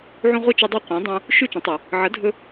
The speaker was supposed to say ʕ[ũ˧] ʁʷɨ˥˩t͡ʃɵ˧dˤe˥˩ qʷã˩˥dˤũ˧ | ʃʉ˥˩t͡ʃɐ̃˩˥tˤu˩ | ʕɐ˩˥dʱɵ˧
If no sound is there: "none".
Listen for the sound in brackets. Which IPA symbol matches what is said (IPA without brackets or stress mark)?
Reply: ũ˧